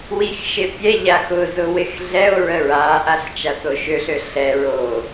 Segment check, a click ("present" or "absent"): absent